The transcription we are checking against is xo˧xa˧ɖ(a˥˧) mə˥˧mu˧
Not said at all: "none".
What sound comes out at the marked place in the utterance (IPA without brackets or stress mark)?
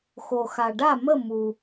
a˥˧